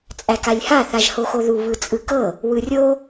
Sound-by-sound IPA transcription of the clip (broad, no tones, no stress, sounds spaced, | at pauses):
t͡sʼ æ k a lʲ h a θ a ʒ h o x o ð u β ɯ t͡sʼ ɯ k ɤ | w ɯ rʲ o